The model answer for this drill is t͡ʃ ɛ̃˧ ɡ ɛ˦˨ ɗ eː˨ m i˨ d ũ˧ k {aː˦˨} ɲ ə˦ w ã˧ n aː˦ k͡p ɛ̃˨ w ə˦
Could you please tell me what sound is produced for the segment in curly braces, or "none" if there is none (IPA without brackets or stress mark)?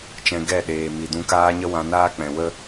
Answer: aː˦